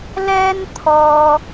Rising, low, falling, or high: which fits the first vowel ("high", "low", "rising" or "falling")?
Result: high